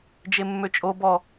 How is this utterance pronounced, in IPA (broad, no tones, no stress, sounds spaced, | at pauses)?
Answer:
d͡ʒ e mː ø t͡ʃʼ o b ɔ